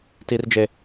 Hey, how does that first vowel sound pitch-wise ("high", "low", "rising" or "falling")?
low